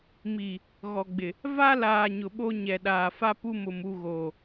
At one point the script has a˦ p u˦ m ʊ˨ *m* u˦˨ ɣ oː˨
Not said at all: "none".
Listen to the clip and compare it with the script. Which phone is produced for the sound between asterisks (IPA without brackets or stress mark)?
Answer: m